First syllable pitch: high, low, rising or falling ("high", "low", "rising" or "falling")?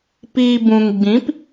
low